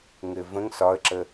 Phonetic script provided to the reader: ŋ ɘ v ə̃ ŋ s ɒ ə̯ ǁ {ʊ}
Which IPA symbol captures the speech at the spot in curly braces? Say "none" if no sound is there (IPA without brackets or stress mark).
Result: ə